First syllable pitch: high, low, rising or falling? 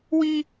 high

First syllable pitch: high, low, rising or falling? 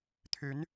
rising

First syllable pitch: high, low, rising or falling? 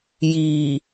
low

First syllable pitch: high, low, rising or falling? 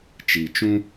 low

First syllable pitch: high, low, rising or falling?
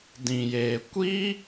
low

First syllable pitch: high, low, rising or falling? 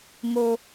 high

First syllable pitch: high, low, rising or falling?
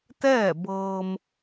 falling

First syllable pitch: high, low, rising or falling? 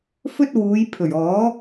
high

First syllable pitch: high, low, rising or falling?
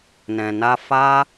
low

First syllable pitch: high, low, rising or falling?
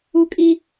high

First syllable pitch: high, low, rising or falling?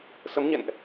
rising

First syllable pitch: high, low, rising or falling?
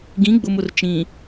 rising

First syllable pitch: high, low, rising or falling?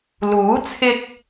rising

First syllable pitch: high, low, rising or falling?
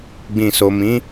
low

